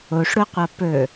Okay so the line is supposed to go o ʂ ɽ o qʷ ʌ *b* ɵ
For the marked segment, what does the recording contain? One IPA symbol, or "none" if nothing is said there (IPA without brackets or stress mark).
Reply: p